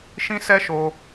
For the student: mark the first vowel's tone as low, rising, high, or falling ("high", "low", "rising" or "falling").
high